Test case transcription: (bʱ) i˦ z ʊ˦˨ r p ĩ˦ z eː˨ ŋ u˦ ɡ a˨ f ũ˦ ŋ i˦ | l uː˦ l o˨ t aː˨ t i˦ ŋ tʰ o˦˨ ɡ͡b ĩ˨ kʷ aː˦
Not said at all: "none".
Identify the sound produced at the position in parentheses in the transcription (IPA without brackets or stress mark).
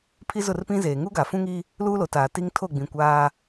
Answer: pʰ